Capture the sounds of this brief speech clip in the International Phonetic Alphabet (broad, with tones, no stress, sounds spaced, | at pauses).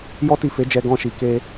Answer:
j ɔ˦ t i˦˨ f e˨˦ d͡ʒ ɛ˧ ɡ ɔ̃˧ ʃ i˨ k e˧